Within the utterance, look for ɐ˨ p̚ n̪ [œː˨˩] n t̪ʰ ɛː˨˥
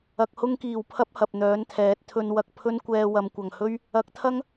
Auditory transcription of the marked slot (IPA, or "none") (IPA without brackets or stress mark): œː˨˥